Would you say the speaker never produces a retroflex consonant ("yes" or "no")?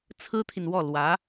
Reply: yes